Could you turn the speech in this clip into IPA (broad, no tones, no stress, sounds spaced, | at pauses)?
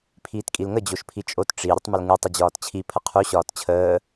pʰ iː t kʼ i l ŋ ə d͡ʑ o ʃ pʰ i t͡ʃʼ o t ʈ͡ʂ i ɾʲ ə tˤ m ə l ŋ ɨ tˤ ə d͡ʑ ɒː t t͡ɕʰ i pʰ ə qʰ u ɕ ɒː t t͡ɕʰ əː